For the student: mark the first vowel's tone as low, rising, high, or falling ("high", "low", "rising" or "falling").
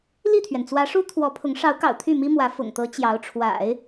falling